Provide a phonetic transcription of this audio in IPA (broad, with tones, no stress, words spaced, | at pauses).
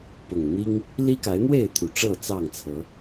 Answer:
pʊ˨˩ŋ n̪i˦ŋ | li˦ka˨˦ɪ̯n̪we˥˨ɪ̯t̪ʰu˨˩ ʈ͡ʂɤ˥˨t͡sɑ˥˨ŋt͡sʰɤ˨˦